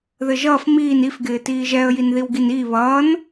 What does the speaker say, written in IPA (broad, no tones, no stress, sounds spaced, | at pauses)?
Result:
ð ɘ ʒ ʌː f m iː n i f ɡ ɪː t iː ʒ ɛ ə̯ j i n ð i w ɡ i n iː β ʌː n